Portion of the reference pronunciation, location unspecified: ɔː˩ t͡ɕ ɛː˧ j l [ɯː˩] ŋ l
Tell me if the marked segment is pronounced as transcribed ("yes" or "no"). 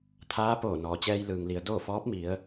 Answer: yes